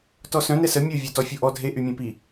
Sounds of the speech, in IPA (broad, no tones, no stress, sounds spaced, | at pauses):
t ɔ s œ̃ n ɛ s ə mʲ o vʲ œ t ɔ fʲ o ʔ ɔ dʱ e ʔ y mʲ ẽ p i